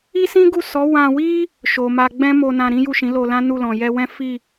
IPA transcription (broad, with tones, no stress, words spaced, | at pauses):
i˦sĩ˦ɡu˦˨ sɔ˨˦wã˧wi˦ | ʃo˨ma˧ɡ͡bɛ̃˦mo˧ nã˧ɾĩ˦ju˦˨ʃĩ˨˦ lo˧lã˦ nu˦˨lɔ̃˨ jɛ˧wɛ̃˦fi˦˨